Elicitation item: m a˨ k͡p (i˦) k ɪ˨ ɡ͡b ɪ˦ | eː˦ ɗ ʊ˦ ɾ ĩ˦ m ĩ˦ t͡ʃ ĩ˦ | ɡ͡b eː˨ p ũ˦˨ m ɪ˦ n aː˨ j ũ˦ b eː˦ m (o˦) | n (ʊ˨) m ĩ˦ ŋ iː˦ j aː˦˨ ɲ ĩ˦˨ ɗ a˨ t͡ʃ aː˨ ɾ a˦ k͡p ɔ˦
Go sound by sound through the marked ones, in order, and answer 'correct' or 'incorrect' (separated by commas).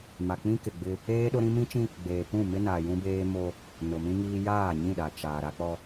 incorrect, correct, correct